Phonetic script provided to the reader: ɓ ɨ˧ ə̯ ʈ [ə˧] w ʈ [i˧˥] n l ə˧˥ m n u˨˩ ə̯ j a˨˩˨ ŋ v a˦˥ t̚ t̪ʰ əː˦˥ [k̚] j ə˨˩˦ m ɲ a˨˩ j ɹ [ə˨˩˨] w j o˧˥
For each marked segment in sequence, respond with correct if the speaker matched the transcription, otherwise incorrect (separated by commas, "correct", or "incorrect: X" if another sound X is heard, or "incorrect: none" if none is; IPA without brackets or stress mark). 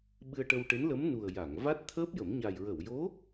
correct, incorrect: e˧˥, incorrect: p̚, correct